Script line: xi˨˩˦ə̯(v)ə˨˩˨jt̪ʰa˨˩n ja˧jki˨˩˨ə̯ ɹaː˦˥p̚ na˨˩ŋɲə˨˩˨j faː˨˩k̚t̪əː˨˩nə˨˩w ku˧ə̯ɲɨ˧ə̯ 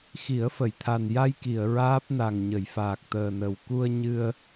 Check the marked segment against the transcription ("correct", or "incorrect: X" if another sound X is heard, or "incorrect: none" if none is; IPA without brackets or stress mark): incorrect: f